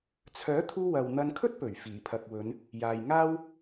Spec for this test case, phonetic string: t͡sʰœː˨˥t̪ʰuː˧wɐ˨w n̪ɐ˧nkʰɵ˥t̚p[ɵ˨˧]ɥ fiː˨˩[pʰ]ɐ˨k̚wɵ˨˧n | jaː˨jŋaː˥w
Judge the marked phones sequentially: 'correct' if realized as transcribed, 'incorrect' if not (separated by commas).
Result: incorrect, correct